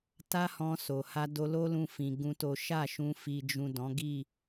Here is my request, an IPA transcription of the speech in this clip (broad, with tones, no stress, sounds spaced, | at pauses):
t a˦ h ɔ̃˧ s o˨ h a˧ d o˧ l o˦ l ũ˧ f ĩ˧ ɡ ũ˦ t o˦ ʃ a˦˨ ʃ ũ˧ f i˨ d͡ʒ ũ˨ d ɔ̃˨˦ ɡ i˦˨